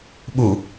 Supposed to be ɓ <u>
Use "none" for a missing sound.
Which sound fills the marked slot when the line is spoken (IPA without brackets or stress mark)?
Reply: u